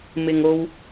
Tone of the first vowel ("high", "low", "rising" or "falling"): low